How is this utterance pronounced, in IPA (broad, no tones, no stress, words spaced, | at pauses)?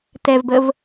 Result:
tɛvbəv